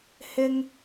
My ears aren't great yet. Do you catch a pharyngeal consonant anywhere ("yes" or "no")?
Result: no